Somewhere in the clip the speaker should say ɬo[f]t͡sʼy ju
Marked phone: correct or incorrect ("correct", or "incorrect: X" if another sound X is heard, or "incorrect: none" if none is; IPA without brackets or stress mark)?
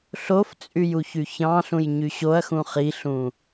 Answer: correct